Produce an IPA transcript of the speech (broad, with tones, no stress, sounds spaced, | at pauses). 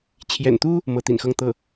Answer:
t͡ɕʰ j ɛ̰˨˩ n t̪ u˥ | m ɤ˧˥ t̪ ḭ˨˩ n x ɤ˥˧ ŋ t̪ ɤ˥˩